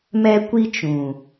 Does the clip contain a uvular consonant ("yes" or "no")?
no